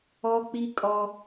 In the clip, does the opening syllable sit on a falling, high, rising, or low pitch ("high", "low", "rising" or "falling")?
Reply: high